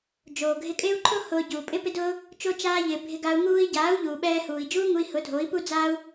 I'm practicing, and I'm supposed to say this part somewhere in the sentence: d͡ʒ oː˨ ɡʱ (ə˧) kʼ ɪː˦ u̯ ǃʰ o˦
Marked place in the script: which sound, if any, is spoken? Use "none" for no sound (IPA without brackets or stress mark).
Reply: ɪ˧